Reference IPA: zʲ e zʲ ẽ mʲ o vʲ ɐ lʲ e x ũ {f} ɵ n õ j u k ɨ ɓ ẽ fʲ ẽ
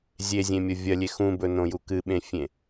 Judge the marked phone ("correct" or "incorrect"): incorrect